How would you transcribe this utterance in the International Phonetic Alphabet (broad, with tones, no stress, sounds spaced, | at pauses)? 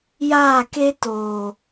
j aː˦˨ k e˦ t oː˨